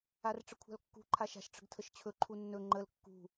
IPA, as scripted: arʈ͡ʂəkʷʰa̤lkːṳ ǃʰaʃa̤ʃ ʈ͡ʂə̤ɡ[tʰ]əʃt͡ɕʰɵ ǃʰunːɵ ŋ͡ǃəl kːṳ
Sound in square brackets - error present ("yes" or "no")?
no